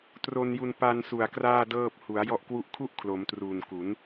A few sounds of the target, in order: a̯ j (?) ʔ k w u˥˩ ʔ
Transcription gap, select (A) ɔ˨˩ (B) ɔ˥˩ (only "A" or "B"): B